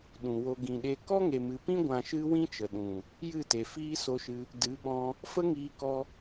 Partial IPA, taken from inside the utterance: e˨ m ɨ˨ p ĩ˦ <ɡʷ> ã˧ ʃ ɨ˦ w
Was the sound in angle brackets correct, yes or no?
yes